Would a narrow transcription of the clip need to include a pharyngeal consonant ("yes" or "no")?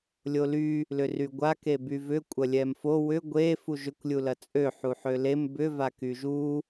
yes